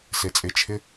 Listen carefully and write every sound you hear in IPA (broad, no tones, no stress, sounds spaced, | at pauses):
s e t͡sʼ ɪ t͡ʃʰ ɪ